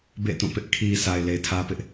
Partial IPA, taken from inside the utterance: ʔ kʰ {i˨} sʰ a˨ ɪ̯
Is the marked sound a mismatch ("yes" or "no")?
no